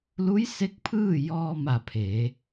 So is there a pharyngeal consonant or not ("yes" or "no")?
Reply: no